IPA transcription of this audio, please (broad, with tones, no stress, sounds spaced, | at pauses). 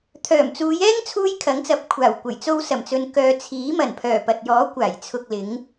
t̪ʰ œː˨˩ m t͡s uː˨˧ j ɛː˥ ŋ t͡sʰ uː˥ j kʰ ɐ˨˥ ŋ t͡s ɐ˨˥ p̚ kʷʰ aː˨˩ w kʷ ɐ˨˩ j t͡s o˧ w s ɐ˨˩ m t͡s ɵ˨ n k œː˨ t͡sʰ iː˨˥ m ɐ˨˩ n pʰ œː˨˩ p ɐ˨ t̚ j ɔː˨˥ kʷ aː˨˩ j t͡sʰ ʊ˨ k̚ l ɪ˨˧ ŋ